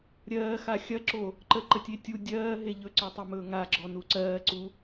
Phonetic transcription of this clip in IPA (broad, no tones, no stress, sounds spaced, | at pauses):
ɾʲ ɜː x a xʲ ɐ ǁ o | ǃ ə ǃ ə tʲ e tʲ u dʲ ɜː ɦ e ʎ ɵ ǀ ɔ tˤ o m ɵː ŋ a ɡ͡ǁ ɔ n u ǀ ɜː ǀ u